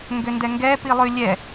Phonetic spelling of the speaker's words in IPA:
ŋ ɡ ʏ n d ɛ ŋ ɡ ɛ p i lˠ ʉ lʲ ɛ

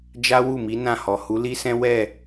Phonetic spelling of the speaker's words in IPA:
d͡ʒ a˦ w u˦˨ m i˨˦ n ã˦˨ h ɔ˨ h u˨˦ l i˦ s ɛ̃˦ w ɛ˦˨

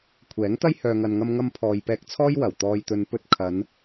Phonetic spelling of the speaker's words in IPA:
kʷʰ ɛː˨˥ ŋ t̪ ɐ˥ j h œː˨ ŋ ɐ˨ n ŋ ɐ˧ m ŋ ɐ˧ m pʰ ɔː˨ j p ɛː˧ k̚ t͡sʰ ɔː˥ j w ɐ˨˩ w t̪ ɔː˨ j t̪ ɵ˨˧ n p ɵ˧ t̚ kʰ ɐ˨˧ n

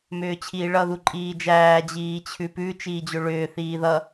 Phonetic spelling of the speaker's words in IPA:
m ʏː t͡ɕʰ iː ɭ ʌ ð u ǃʼ iː d͡ʒ æː d͡ʑ iː t͡ɕʰ ʉ p ʉ t͡ʃ iː d͡ʑ ʏ ɭ ʏː θ iː ð ʌ

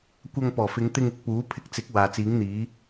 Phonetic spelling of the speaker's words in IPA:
kʷ ɐ˧ ŋ p ɔː˨˩ f ɪ˨˧ ŋ t̪ ɪ˧ ŋ ɪ˨˥ k̚ p uː˨˥ pʰ ɪ˧ k̚ t͡s ɪ˨˥ k̚ w aː˨ t͡s iː˨˥ ŋ n̪ iː˨˥

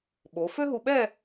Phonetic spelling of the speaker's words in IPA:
ɓ o˩˧ f ø˥ ɦ u˧ ɓ ɛ˥˧

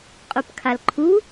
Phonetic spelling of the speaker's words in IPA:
qʼ u p kʰ a l ǃʰ u

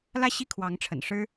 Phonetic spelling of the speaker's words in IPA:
l ä˥˧ ɕ i˥˩ kʰ w ɑ˧˥ ŋ ʈ͡ʂʰ ə̰˨˩ n ʂ ɻ̩˥

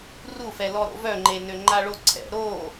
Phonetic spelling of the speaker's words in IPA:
r u f ɛ l ɔ ɾ o̰ v œ ŋ͡ǃ e n ø ŋ͡ǃ a ɭ o ǀʰ ɛ̰ ɾ o

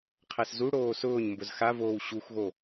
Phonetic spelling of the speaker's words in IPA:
qʰ æ s z u ɽ oː s ʊː ɲ m b ʊ z x a v oː w ɕ u x ɣ o

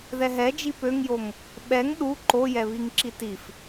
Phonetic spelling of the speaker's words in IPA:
ð ɛ ɦ ɛ d͡ʒ i p ø ŋ j o ŋ | ɓ ɛ ŋ ɗ u ǃ o j ɛ β i ŋ ǁ i t i f

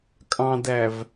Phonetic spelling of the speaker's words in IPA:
kʼ ɑ̃ d æ v

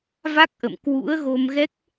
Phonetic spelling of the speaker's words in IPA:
v a˦˥ k̚ ʔ ə̰˧˨ m k w ṵ˧˥ ə̯ ɣ o˧ m ɣ ɛ˦˥ k̚

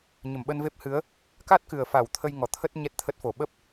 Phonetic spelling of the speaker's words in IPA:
ɲ ə˧˩ m ɓ ə˧ n v e˦˥ p̚ h ɨ˨˦ ə̯ | k a˦˥ t̚ k ɨ˨˩ ə̯ f a˧˩ w t̪ʰ ə˧ j ŋ ɔ˨˩ t̪ʰ ə˦˥ t̚ ɲ ɛ˦˥ t̚ t̪ʰ ə˦˥ t̚ f o˨˩ ɓ ə˦˥ p̚

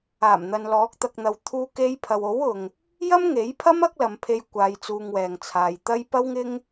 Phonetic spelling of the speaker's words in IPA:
aː˨˩ m n̪ ɐ˨ n l ɔː˨˥ k̚ t̪ ɐ˧ k̚ n̪ ɐ˧ w t̪ʰ uː˥ k e˥ j pʰ ɐ˨ w o˨˥ w ʊ˨ ŋ | j ɐ˥ m ŋ e˨˥ j pʰ ɐ˥ m ɐ˥ k̚ l ɐ˨ m pʰ e˧ j kʷ aː˧ j t͡s uː˧ ŋ w ɛː˨ ŋ t͡sʰ aː˨ j t̪ ɐ˥ j p ɐ˥ w ŋ ɪ˥ ŋ

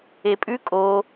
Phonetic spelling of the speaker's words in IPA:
e pʼ ʉ kʼ o

